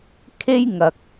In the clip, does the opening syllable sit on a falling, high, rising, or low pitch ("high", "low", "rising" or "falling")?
high